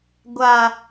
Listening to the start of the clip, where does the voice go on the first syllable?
low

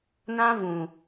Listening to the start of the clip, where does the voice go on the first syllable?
high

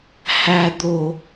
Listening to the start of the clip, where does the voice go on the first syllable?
low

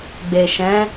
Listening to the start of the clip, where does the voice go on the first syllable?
low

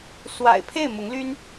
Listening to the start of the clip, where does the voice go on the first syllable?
low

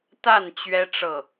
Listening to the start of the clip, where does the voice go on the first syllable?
falling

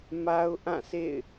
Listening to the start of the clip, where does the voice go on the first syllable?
high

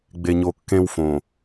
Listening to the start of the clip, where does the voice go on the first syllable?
low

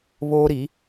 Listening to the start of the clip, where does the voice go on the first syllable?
high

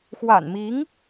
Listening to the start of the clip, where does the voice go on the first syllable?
low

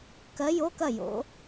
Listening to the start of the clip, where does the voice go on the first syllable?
rising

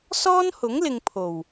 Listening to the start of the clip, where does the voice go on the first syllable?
high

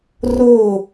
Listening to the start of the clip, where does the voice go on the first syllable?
falling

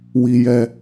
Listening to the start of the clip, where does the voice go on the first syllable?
high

